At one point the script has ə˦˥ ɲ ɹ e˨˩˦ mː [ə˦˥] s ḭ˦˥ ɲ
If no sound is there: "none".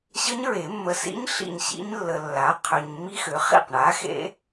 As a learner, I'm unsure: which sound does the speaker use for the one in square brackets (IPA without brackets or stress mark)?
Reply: ə˨